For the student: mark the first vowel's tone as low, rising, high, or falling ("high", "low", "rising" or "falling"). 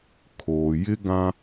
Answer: low